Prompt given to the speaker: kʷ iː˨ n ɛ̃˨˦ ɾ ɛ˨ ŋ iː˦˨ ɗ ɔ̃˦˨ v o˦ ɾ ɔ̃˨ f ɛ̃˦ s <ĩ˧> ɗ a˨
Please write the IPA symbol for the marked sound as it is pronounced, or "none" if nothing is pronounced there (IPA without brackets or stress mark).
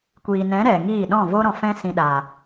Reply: ĩ˧